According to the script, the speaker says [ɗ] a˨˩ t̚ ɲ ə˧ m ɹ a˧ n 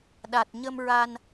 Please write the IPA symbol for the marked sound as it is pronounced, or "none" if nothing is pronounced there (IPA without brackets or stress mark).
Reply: ɗ